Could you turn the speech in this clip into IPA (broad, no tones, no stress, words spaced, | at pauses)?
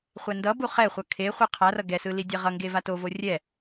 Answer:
χʷɛndʌbu χɛχʷʌ kʰe χʷɯqʰarʌ ɡɛsɯ lidʲɛʁʌŋɡe vatovo rʲɛ